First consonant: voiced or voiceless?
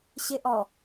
voiceless